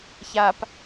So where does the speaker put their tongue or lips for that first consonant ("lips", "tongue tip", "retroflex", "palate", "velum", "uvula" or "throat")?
palate